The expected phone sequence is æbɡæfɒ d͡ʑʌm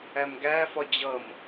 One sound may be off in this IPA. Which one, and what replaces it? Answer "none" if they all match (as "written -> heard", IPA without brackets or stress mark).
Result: b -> m